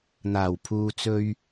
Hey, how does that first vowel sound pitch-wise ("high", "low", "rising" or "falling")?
low